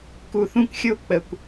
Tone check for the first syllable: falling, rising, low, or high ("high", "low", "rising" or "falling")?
low